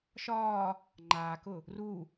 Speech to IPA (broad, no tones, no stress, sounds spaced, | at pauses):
ʃ ɒː | ŋ͡ǃ aː k ʊ | r u